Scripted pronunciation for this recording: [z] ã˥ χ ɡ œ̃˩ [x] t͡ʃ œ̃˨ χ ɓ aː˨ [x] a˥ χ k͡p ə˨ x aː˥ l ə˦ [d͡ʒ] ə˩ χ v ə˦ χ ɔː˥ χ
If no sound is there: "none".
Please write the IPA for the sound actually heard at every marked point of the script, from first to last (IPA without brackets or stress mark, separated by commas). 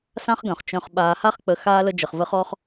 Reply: s, χ, h, d͡ʒ